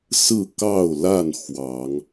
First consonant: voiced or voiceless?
voiceless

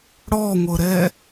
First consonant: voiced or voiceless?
voiced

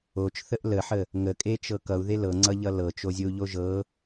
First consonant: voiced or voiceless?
voiceless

